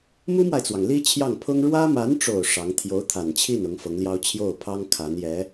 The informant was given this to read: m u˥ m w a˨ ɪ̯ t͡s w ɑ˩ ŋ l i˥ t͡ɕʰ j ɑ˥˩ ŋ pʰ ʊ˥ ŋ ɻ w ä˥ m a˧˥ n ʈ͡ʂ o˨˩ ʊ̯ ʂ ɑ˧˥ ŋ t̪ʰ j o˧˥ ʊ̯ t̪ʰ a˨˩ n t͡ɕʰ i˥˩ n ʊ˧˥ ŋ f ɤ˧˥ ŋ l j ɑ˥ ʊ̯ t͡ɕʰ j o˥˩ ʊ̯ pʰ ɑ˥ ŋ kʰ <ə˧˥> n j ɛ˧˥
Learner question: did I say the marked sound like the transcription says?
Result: no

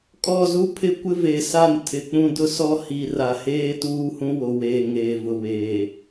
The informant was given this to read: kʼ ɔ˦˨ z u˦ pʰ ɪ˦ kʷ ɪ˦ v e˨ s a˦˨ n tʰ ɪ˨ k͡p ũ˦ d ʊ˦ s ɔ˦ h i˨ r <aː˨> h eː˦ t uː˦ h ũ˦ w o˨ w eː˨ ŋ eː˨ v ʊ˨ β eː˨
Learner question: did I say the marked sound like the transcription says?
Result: no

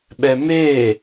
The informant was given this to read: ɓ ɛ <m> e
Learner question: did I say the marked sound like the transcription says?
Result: yes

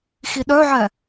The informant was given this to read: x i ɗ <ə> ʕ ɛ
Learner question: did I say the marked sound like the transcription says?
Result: no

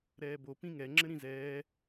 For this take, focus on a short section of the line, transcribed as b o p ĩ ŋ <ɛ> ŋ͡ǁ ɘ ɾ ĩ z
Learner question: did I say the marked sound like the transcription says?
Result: yes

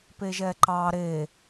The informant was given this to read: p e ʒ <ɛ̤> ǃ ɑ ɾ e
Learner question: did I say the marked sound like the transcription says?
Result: no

